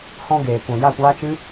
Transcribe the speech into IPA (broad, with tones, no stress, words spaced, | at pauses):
hɔ̃˧ ɡeː˨kʷɛ̃˨ ja˦˨kʷaː˦t͡ʃɨ˦